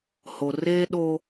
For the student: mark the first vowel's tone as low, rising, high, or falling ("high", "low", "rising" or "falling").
low